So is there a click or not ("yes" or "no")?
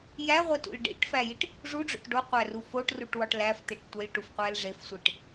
no